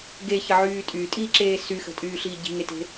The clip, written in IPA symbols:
ɡ e ç ə ʕ yː tʼ y tʼ iː ǁ eː s y x ə̤ tʼ yː ɬ iː ɟ i̤ ŋ e t e̤

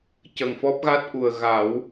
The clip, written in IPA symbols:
c ə˨˩ ŋ f ɔ˦˥ p̚ ɣ a˦˥ t̚ ʔ u˨˩ ə̯ ɣ a˨˩˦ w

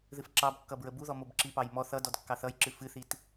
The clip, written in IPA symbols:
ð ɨ f ǁ ɑ b kː ʌ b ɹ ə b u ð ɔ m o b ǁ i p ɑ j m ɔ θ ʌ d ɔ d kː ɑ θ ʌ j ǁ ɨ f ɨ θ i t

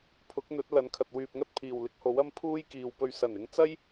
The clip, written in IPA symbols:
pʰ ʊ˨˥ k̚ n̪ ɵ˨˥ t̚ l ɐ˨˥ n kʰ ɐ˨ t̚ w yː˨ p̚ ŋ ɐ˥ t̚ pʰ iː˨˩ w l ɪ˧ k̚ h o˨˥ w ɐ˥ m pʰ uː˥ j k iː˨ w p ɵ˧ ɥ s ɐ˨˩ n ɪ˨˧ ŋ t͡s ɐ˥ j

